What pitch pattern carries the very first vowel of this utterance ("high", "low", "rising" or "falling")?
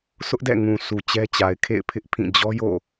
high